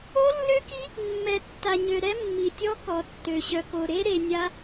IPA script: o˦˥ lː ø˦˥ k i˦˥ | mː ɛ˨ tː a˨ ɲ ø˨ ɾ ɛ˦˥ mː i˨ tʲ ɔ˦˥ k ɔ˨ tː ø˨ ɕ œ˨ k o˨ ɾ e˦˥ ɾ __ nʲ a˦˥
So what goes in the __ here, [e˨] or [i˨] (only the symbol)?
e˨